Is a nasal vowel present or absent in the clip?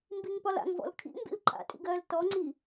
absent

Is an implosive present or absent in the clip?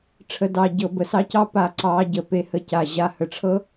absent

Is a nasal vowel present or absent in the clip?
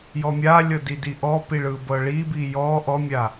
absent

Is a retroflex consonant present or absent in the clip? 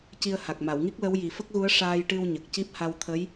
present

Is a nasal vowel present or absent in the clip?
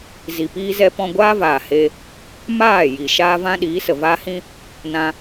present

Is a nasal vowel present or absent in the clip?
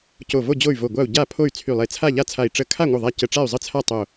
absent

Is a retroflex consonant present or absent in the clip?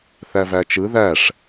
present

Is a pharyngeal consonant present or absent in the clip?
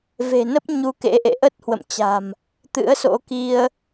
absent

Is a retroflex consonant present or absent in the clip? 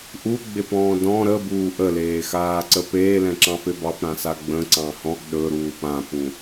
absent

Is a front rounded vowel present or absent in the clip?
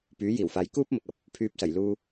present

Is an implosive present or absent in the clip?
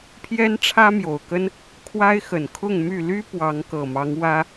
absent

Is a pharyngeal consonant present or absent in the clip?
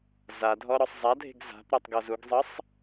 absent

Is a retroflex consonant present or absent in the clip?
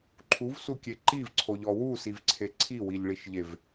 present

